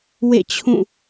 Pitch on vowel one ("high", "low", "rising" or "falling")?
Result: falling